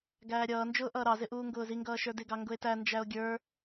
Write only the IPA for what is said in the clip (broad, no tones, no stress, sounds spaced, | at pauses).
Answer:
ɡ æː ɾʲ ʌː n d͡ʒ ʊː ʔ ʌː ɾ ɑ z ɪ ʔ uː ŋ ɡ ʊː z i ŋ ɡ ʌː ʃ ə˞ d ɪ ɡ ɑ ŋ ɡ ʊ e̯ t æ n d͡ʒ æ o̯ ɡʲ ə˞